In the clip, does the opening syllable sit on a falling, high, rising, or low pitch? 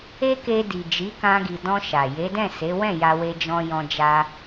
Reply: high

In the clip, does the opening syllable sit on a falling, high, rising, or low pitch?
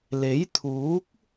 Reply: rising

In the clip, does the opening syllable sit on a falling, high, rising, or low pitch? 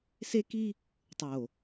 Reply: high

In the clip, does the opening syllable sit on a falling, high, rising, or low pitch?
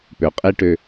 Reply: low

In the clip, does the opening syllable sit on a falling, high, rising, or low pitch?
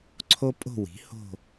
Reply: high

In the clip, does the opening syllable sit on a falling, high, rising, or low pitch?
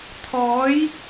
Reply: rising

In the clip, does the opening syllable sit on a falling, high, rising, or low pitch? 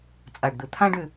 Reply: low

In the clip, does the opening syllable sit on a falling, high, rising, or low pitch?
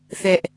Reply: high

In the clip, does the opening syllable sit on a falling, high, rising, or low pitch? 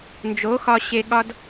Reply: rising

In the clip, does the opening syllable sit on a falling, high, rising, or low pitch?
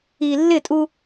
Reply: low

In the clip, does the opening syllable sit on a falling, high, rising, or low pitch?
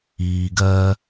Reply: low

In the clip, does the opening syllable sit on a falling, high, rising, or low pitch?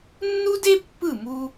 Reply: high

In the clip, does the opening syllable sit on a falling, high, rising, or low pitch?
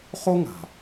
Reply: high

